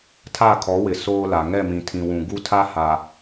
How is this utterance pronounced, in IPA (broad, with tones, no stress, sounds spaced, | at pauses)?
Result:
tʰ a˦˨ kʰ ɔ˨˦ w ɪ˨ s oː˦ l a˨ ŋ ɛ˦˨ m ĩ˨ tʰ ĩ˨ w ũ˨ ɡ u˦ tʰ a˦ h a˨